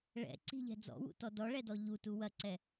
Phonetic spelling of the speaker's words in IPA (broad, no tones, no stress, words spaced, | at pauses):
ɭɛ̰ ǀi̤ʎɛ̤ d͡zɔ̰wṵtɔ dɔɭɛdɔ ʎutu wɐǀɛ